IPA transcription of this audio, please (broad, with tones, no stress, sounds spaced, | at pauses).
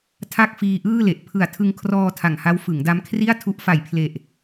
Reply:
tʰ a˥˩ k̚ f iː˧ ʔ ɯː˥˩ l e˨˩ ʔ pʰ ɯ˨˩ a̯ tʰ ɯ˧ ŋ kʰ r ɔː˧ tʰ a˨˩ ŋ h a˦˥ w f ɯ˩˦ ŋ d a˦˥ m kʰ r i˥˩ a̯ tʰ u˦˥ ʔ f a˨˩ j pʰ l e˨˩ ʔ